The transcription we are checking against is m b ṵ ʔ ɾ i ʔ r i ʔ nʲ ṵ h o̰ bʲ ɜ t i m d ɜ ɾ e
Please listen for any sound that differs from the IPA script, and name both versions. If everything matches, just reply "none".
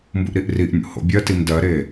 none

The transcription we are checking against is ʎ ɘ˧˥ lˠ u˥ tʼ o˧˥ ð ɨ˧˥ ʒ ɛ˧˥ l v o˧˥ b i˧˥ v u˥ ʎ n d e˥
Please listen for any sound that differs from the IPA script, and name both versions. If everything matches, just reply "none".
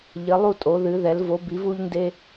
ʒ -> ð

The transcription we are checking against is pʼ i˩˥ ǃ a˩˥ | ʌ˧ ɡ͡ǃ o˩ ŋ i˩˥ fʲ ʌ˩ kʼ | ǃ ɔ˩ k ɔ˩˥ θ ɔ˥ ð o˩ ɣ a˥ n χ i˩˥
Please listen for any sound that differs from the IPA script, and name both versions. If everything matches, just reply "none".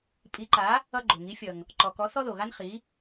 kʼ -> ŋ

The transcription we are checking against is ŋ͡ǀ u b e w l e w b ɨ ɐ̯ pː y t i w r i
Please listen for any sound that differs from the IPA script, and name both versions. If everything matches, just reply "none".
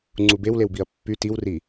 ɨ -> i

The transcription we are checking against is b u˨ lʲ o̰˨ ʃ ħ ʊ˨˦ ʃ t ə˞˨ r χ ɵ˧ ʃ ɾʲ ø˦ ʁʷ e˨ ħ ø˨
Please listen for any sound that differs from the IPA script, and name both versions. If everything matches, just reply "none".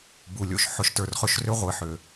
ɾʲ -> r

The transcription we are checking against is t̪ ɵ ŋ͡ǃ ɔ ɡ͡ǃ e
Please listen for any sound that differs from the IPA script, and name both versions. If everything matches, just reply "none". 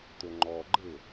none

